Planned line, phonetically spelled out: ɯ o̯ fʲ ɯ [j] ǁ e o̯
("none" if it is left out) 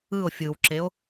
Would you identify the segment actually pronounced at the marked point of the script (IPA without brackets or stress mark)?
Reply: w